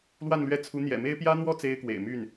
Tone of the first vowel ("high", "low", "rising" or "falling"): falling